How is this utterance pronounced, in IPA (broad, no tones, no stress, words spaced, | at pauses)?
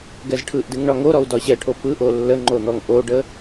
ɡɛzʈʰɯʔdɨŋ ɳɒŋoɾɔu̯ dɒɕɛʈʰo pɯʔo lːəŋ͡ǃo n̪ɔŋʔoɖə